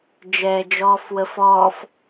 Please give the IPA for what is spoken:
d͡ʒ ɛː d͡ʒ ɔː f w ə f ɔː f

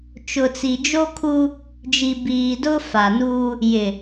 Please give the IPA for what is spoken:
t͡ʃ ʊ˨ t͡s i˨ d͡ʒ o˦ kʰ u˦ | d͡ʒ i˨ b iː˨ d ʊ˦ f a˨ n uː˦ | j ɪ˨

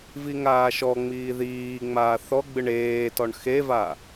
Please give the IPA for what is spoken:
v i ŋ aː ʃ ɔ ŋ͡m iː ð iː ŋ͡m aː θ ɔ ɡ͡b ɨ ɳ eː t ɔ ɳ x e v a

